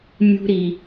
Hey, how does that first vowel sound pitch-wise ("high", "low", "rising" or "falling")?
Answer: high